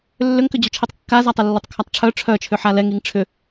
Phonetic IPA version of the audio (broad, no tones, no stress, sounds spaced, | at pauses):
lː ʏ ŋ k ʏ d͡ʑ u t͡ʃʰ i tˤ kː a z a tˤ ɛ lː œ tˤ kʰ a tˤ ʈ͡ʂʰ œ ʈ͡ʂʰ œ t͡ʃʰ ʏ ħ a l ɛ ŋ i ŋ ʈ͡ʂʰ ʏ